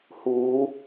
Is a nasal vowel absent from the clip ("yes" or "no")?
yes